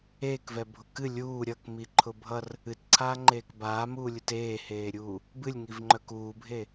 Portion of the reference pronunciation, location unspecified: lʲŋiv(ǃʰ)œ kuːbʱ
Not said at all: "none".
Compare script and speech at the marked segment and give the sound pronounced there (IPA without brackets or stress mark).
ŋ͡ǃ